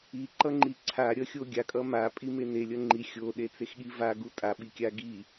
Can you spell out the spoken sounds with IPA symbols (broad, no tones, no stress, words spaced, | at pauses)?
iǃʌŋ͡ǃi ǀʰaɾʲʌxʲo ɡʲakʼʌ mapʼime nelʲʌ ŋ͡ǃi xʲoɗet͡sexɠi vaɡu tʼaɓikʲa ɡi